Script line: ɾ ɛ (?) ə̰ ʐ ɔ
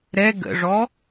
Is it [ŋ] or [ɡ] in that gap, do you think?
ɡ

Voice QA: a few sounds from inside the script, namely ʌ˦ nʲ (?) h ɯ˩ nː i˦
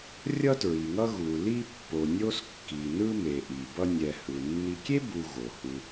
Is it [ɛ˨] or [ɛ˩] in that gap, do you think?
ɛ˨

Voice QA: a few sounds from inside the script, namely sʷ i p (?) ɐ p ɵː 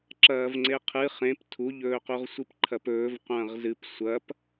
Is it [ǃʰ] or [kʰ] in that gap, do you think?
ǃʰ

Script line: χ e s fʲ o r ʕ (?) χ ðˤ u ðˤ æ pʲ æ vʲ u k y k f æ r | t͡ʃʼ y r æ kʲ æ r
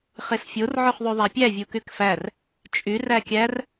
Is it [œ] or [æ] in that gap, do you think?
œ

